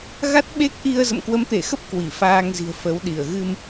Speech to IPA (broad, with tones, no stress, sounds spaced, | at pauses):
ɣ a˦˥ t̚ ɓ e˦˥ k̚ ʔ i˧ ə̯ z ə̰˧˨ m k w ə˨˦ m t̪ e˧˩ x ə˦˥ p̚ k w i˧˩ f aː˧ ŋ z i̤˨˩ ə̯ f ə˨˦ w ɗ i˧˩ ə̯ ɣ ɨ˧ m